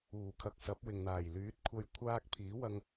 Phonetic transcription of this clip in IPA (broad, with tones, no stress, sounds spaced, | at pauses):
uː˨˩ kʰ ɐ˨ k̚ s ɐ˨˥ p̚ w ɪ˨ ŋ n̪ aː˨˩ j l yː˨˥ t̚ kʷʰ ɐ˧ j kʷʰ aː˥ k̚ pʰ iː˨˥ w ɐ˧ ŋ